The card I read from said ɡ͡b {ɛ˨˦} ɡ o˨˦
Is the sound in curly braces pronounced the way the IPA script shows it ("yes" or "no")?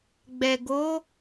no